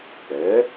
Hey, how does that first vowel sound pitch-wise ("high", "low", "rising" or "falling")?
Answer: rising